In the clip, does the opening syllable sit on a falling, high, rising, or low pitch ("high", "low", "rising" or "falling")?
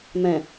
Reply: low